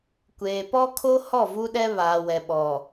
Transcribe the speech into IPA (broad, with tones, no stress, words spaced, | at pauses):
kʷeː˨ pɔ˦kʰo˦ hɔ˦˨vu˦ɗɛ˦βaː˨ wɛ˨ɓɔ˨